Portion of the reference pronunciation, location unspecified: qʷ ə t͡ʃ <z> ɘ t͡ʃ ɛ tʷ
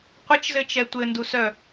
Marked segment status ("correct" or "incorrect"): correct